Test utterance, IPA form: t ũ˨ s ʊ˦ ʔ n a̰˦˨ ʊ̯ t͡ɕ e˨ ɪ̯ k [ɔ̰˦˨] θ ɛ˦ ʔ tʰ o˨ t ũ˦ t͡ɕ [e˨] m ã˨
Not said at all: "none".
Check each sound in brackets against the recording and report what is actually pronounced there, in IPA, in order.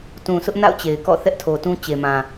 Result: ɔ̰˦˨, e˨

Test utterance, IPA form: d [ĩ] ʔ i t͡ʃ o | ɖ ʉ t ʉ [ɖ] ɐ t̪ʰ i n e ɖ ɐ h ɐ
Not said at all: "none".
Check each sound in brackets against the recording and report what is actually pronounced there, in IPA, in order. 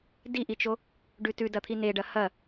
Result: i, d

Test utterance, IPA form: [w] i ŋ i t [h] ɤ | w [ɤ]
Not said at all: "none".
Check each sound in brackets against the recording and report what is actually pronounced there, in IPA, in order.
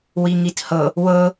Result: w, h, ɤ

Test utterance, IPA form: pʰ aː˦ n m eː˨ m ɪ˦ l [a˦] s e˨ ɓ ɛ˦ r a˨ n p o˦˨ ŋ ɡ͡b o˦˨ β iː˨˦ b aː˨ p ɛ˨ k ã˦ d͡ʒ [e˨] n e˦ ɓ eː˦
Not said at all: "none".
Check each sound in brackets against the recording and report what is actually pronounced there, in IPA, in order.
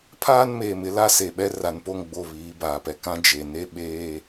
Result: a˦, e˨

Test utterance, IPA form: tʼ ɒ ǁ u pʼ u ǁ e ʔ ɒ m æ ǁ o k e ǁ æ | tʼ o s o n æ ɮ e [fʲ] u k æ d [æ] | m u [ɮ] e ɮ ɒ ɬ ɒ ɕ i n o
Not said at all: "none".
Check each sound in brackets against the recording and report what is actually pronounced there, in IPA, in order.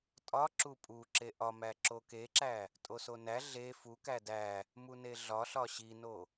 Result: f, æ, n

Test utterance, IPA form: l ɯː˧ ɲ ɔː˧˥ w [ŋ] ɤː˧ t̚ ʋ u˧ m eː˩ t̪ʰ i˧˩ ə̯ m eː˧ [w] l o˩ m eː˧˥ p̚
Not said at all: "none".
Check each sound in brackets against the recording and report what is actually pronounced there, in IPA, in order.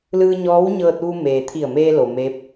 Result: ɲ, none

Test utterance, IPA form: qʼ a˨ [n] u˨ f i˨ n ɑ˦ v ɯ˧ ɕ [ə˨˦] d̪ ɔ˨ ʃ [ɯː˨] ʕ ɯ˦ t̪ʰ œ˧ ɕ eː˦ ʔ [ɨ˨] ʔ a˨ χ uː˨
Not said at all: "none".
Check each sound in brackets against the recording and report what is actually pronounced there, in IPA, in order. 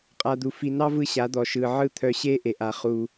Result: d̪, a˨˦, ɯː˨, e˨

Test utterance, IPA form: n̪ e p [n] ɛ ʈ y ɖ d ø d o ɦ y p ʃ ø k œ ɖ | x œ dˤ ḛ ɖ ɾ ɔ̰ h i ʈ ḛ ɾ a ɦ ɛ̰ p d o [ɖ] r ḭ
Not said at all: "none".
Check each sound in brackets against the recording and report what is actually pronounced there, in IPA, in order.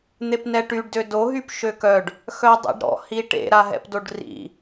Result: n, ɖ

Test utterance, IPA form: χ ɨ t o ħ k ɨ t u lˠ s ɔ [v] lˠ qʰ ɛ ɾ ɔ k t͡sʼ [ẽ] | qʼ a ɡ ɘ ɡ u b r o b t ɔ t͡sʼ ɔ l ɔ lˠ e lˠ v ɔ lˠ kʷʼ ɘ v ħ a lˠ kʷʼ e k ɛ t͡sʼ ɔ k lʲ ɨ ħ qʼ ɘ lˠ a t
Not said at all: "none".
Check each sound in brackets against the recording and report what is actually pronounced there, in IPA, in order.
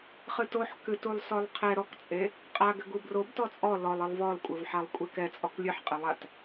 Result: none, e

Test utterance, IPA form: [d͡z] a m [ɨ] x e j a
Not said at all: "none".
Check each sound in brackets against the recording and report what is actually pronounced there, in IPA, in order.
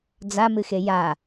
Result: d͡z, ɨ

